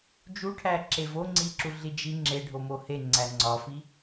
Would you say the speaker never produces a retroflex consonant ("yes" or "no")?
no